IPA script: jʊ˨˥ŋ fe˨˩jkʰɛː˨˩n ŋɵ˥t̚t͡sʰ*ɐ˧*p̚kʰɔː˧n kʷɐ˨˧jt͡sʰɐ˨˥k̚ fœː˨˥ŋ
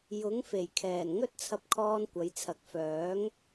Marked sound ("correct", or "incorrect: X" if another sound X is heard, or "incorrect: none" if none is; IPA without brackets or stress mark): correct